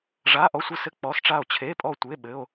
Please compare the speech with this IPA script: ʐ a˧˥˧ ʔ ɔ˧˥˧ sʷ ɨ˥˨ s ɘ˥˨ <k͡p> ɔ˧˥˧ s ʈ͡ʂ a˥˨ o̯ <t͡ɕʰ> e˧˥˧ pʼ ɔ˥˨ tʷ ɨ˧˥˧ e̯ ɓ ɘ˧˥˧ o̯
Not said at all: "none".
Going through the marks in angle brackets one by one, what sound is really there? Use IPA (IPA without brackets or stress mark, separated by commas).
k͡p, t͡ɕʰ